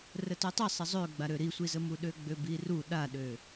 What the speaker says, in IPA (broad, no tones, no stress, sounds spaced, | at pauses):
r ə t ø tˤ i sˤ ə zˤ ø ɡ͡b a ɾ ø ɾ i sʷ i z ə m u ɗ ø ɡ͡b ø b i r u ɗ a ɗ ø